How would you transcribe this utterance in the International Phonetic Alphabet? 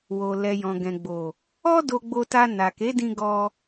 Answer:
w o˨ l ɛ˨ j ɔ̃˨ ɡ ɛ̃˨ ɡ͡b o˨ | ɔ˦ d o˧ ɡ͡b o˧ t a˧ n a˨ k e˨˦ d ĩ˧ ɡ ɔ˦

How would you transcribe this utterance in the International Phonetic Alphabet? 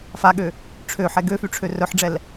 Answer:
f a ɠ ø | ʈ͡ʂʰ ø ħ ɛ ɡ ø f y ʈ͡ʂʰ ø r œ ħ ɖ͡ʐ ɛ l

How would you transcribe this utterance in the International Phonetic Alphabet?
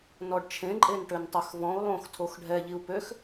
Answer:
n ɔ ɖ t͡ʃʰ ẽ ǃʼ e n ʈ ø n tˤ ø x v ɔ̃ u̯ lˠ õ x tʰ o x ɖʱ ɛ ʎ i u̯ p ø x

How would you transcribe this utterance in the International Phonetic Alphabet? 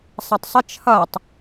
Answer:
sˤ æ tˤ sˤ ɪ t͡ʃʰ ʌ tˤ

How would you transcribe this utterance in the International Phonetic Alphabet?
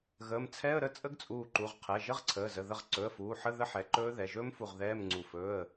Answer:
ɣ əː˩˧˩ m t͡sʰ ɛ˧˥˧ ə̯ ɾ ə˧˥˧ t͡sʼ ə˦˥ ɡ t͡sʼ uː˧˩ ǃ u˩˧˩ ʁ qʰ ɛ˩˧˩ ʒ ə˧˥˧ ʁ ǀʰ əː˩˧˩ z ə˩˧˩ ð ə˧˩ ʁ ǀ ɵ˩˧˩ ə̯ f uː˩˧˩ ħ ə˧˥˧ ð ə˦˥ ħ ɛ˩˧˩ ǃ ɵː˦˥ ð ɛ˩˧˩ ʒ ɵː˦˥ m f u˧˩ ʁ ð ɛː˧˥˧ m ŋ͡ǀ u˧˩ f ɵː˧˥˧ ə̯

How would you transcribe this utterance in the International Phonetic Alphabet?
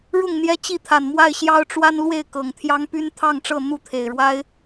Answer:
ɻ ʊ˥˨ ŋ n̪ j ɛ˦ t͡ɕ i˥˨ t̪ʰ a˨˩ n m w a˥˨ ɪ̯ ɕ j ɑ˦ ʊ̯ ʈ͡ʂ w a˦ n l w e˥˨ ɪ̯ k ɤ˨˩ ŋ t̪ʰ j ɑ˦ ŋ p y˦ n t̪ʰ ɑ˥˨ ŋ ʈ͡ʂ ɤ˥˨ n̪ u˥˨ t̪ʰ e˨˩ ɪ̯ ɻ w a˦ ɪ̯

